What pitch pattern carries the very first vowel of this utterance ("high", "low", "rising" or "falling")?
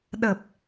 low